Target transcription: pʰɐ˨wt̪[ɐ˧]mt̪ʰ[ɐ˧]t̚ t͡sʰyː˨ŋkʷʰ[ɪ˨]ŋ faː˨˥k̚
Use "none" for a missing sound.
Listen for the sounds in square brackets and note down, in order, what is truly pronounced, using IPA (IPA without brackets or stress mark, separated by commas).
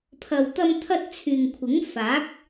ɐ˧, ɐ˧, ɪ˨˥